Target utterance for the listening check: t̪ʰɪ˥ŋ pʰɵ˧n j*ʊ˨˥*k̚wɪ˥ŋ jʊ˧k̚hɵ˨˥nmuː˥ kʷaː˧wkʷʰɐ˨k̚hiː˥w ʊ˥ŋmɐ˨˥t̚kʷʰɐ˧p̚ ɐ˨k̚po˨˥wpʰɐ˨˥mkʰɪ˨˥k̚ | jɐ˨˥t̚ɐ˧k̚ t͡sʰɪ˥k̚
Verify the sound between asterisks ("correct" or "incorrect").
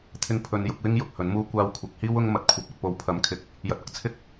incorrect